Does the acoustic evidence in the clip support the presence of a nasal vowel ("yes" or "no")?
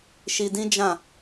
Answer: yes